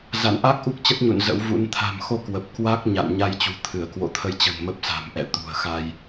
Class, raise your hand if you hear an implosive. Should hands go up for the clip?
no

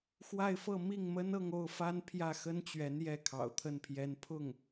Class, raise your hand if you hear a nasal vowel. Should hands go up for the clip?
no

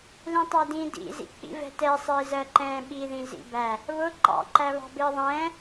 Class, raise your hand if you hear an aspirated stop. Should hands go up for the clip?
no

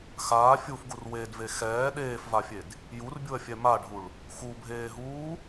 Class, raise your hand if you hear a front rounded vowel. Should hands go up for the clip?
no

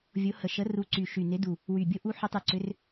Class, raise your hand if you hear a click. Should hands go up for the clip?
yes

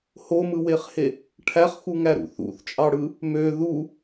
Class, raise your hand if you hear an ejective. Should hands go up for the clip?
yes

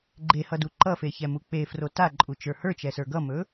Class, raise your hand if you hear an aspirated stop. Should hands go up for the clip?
no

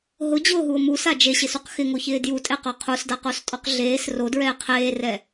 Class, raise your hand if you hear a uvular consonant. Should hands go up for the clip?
yes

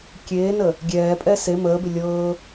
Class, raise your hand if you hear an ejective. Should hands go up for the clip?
yes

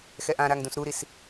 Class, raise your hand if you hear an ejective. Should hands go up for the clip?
no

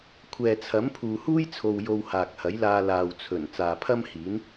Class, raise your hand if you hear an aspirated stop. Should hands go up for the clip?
yes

